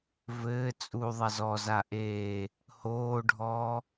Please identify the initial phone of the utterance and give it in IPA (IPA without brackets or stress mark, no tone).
v